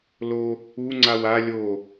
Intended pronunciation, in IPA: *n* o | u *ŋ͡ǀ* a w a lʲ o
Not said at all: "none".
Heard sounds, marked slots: l, ŋ͡ǀ

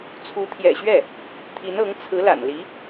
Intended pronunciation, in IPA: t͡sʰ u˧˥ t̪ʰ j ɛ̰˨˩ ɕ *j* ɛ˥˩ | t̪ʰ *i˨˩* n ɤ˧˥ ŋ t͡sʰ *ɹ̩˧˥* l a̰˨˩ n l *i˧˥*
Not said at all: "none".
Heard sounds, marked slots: ɥ, i˧˥, ɹ̩˧˥, i˧˥

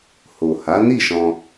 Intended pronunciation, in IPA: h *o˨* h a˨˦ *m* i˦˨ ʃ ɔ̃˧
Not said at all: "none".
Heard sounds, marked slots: o˨, n

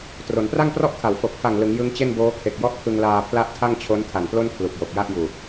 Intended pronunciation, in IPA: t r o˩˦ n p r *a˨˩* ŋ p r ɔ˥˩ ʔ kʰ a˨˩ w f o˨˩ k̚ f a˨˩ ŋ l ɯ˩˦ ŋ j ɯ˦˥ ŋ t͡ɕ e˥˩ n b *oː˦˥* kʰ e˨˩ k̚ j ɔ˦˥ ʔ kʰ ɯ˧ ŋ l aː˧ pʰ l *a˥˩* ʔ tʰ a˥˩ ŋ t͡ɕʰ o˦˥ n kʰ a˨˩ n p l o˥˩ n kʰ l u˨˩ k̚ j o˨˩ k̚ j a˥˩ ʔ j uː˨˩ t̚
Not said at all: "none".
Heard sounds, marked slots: a˥˩, oː˦˥, a˥˩

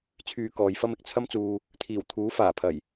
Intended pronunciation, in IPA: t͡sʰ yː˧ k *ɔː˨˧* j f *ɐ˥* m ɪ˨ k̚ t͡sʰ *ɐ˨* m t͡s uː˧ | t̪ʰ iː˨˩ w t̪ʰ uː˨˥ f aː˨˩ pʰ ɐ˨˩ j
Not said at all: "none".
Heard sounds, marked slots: ɔː˨˧, ɐ˥, ɐ˥

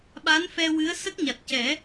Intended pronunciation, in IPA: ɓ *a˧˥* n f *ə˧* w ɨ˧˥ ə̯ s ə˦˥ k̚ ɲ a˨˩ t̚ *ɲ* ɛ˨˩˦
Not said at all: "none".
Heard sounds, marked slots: a˧˥, ɛ˧, c

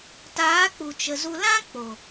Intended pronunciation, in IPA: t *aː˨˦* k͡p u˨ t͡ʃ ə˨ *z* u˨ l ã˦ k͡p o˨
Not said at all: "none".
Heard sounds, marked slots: aː˨˦, z

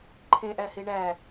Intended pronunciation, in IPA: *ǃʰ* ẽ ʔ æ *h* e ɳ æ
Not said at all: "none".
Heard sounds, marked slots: ǃʰ, h

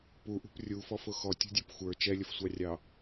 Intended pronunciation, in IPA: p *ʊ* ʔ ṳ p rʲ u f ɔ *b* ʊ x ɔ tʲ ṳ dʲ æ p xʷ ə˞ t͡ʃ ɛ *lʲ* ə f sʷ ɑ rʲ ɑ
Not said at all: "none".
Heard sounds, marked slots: u, f, lʲ

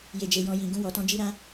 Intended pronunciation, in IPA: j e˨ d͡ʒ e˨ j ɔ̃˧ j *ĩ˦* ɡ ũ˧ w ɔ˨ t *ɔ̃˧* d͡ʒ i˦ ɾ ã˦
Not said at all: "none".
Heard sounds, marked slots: ĩ˨, ɔ̃˧

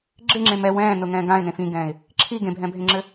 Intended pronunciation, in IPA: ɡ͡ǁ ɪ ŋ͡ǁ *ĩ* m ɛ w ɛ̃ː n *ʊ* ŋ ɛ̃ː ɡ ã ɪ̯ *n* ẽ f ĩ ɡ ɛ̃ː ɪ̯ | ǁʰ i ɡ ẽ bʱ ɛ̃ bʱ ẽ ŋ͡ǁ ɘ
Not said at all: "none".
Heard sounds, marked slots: ẽ, ʊ, n

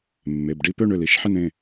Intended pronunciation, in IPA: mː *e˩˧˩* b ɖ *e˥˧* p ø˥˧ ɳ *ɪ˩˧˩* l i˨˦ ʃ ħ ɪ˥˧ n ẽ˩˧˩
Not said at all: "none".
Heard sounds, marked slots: e˩˧˩, i˥˧, ʏ˩˧˩

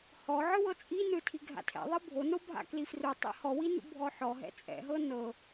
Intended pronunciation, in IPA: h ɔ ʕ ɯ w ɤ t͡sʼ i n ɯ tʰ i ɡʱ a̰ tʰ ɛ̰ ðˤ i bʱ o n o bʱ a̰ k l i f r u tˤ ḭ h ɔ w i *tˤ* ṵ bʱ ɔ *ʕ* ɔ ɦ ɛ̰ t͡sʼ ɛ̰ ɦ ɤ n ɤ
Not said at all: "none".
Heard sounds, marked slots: n, ħ

